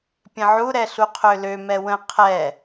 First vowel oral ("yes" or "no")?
no